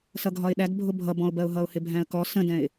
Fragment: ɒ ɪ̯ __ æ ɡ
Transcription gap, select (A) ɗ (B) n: A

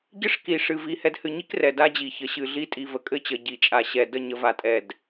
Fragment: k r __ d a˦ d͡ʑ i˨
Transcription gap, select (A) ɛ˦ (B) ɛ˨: B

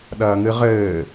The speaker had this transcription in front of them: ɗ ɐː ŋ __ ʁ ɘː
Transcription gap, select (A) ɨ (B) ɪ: A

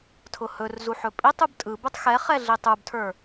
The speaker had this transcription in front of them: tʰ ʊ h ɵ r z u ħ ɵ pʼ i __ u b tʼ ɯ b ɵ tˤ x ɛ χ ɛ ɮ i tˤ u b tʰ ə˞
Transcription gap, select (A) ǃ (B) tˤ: B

